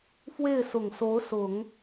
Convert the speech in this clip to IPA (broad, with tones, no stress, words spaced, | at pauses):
fwe˥˩ɪ̯sʊ˨˩ŋso˧˥ʊ̯sʊ˨˩˦ŋ